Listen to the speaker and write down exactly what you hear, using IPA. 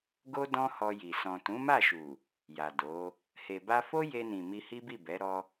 ɡo˦ dɔ̃˦hɔ˧ ji˨ sɔ̃˨tũ˨˦ma˦˨ʃu˨ | ja˨do˨˦ | he˨ba˧fo˦ je˧nĩ˨ mi˧hi˦bi˦˨bɛ˨˦ ɾɔ˧

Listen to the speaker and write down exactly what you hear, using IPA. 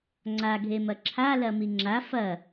ŋ͡ǀaɡʱemɐ ǁʰalɐmi ŋ͡ǁa fɐ

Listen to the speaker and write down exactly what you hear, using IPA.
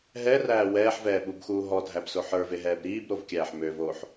ɦɛræː wɛːħvɛːɓubxuː ɦɔdʱæbso ħə˞veɦɛːb ɾiːbɾovkʲæːħ møvoːħ

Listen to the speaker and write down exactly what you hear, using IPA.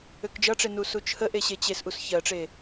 økd͡ʒʌʈ͡ʂe nusut͡ʃʰəʔe ɕet͡ɕesʔus çɜʈ͡ʂe

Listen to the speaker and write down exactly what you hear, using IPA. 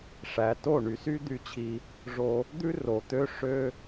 ʂæ˨to˦˨ ɳy˨sy˦ d̪y˧t͡ɕʰi˧ | ʐo˧ | d̪ʉ˦ro˨t̪ø˦ ʂø˦

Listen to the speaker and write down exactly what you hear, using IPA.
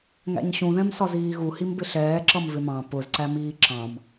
ŋæ̰ɲɕũðɛ̃msɒ ziːɣuhimbɪ ɬɛːǁʌm vɪmɑ̃ pʊzǀæmiː ǁɑ̃m

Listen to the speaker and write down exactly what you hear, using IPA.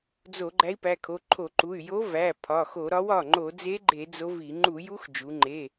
d͡zo˧˩˧ ɡ͡ǃæ˧˥i̯pæ˩˧˩kʰo˩˧˩ ǃʰo˧˩˧ǃu˩˧˩y̯ jo˧˥ væ˩˧˩ pʰɒ˩˧˩xo˧˩˧ ɾɒ˧˥wɒ˩˧˩ ŋ͡ǃo˧˩˧d͡ze˧˥ɡ͡ǃe˧˩˧ d͡zo˧˥vi˧˩˧ ŋ͡ǃu˧˩˧ju˧˥x d͡ʒu˩˧ŋ͡ǃe˩˧˩

